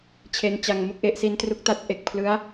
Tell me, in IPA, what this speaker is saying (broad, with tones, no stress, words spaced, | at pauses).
t͡ɕʰe˦˥nt͡ɕa˧ŋmu˥˩k̚ʔe˦˥ʔ si˦˥ntru˦˥k̚ta˦˥t̚ʔe˨˩k̚ pʰlɯ˦˥a̯